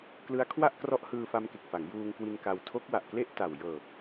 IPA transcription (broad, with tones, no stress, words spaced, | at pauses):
klɯ˦˥a̯kʰwa˥˩ʔkrɔ˦˥ʔ hɯː˧fa˧mke˨˩k̚fa˩˦ŋ juː˧ŋkwi˧n ka˧w tʰo˦˥k̚wa˨˩ʔ kle˥˩ʔ ta˨˩wjɤː˨˩p̚